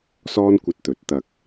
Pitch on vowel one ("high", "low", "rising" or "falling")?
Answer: high